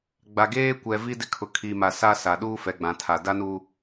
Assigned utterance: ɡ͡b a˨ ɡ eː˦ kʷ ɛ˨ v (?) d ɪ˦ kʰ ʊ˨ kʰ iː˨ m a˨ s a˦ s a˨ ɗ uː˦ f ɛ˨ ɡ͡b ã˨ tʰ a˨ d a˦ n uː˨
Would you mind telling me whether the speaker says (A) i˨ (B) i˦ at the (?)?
B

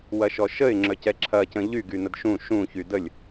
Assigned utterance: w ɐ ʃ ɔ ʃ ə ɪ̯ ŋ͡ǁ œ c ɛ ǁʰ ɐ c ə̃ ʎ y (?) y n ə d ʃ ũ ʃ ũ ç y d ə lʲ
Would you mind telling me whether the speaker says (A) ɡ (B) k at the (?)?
A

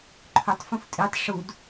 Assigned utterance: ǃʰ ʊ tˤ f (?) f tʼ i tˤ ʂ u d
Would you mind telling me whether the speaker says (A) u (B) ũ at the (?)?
B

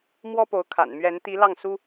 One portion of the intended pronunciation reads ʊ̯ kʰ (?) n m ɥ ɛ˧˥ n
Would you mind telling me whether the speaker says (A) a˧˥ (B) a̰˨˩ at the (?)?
B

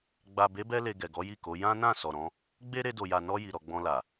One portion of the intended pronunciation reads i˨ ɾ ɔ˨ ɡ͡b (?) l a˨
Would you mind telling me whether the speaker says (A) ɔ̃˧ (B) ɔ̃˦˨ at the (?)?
A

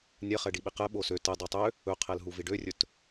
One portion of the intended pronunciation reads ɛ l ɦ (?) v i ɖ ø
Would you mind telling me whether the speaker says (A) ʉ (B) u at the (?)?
B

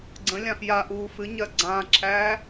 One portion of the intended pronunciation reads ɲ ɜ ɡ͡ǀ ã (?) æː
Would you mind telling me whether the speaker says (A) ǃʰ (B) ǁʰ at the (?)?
B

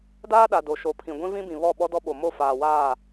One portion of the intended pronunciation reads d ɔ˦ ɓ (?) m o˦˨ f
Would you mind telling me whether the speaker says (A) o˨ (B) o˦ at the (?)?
A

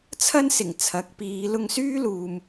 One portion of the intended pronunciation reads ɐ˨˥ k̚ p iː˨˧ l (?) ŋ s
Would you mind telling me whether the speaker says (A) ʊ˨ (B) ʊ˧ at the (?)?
B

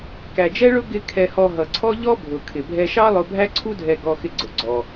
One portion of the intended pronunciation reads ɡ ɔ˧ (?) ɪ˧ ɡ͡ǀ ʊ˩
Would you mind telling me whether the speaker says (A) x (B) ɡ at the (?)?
A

